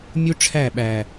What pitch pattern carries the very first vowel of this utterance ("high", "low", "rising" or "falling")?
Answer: high